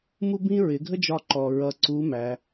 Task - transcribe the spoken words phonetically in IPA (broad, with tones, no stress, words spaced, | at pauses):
mu˥bĩ˥ ɹɪ˩˧ɡʱə˥d͡ʒɒ˧ǃɔ˩ ɹʌ˧ ǀu˧˥mæ˩˧